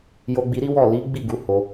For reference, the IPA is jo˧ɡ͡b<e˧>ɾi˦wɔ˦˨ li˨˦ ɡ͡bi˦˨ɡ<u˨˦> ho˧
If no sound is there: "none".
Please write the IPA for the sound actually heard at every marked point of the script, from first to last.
i˧, u˨˦

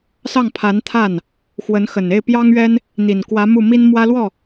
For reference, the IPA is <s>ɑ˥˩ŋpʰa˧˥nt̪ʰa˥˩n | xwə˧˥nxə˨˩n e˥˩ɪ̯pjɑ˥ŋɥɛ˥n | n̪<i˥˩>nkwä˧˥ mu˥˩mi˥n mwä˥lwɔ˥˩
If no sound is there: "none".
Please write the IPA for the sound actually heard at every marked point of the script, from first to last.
s, i˨˩

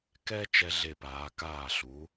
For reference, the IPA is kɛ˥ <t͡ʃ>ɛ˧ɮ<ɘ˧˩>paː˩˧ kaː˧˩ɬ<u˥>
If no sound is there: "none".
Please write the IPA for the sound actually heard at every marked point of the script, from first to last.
t͡ʃ, e˧˩, u˩˧

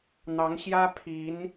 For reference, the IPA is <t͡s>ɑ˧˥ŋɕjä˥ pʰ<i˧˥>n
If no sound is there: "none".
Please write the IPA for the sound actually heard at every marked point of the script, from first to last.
n̪, i˧˥

